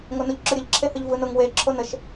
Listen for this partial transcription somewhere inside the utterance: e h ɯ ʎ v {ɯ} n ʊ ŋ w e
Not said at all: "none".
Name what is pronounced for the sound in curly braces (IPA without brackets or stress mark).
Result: ɯ